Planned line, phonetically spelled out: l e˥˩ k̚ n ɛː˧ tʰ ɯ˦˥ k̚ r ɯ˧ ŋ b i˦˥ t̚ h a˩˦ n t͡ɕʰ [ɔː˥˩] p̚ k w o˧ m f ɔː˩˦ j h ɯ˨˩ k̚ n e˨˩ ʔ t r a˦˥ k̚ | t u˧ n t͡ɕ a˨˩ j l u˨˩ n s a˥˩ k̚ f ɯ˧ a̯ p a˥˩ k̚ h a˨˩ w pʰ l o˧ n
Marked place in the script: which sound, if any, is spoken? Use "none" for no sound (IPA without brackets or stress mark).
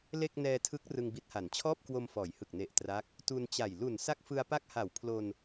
ɔː˥˩